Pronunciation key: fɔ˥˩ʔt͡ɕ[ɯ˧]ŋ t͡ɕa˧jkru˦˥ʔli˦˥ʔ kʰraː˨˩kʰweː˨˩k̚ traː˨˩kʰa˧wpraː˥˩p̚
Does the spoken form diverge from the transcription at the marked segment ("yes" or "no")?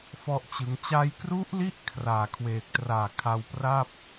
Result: yes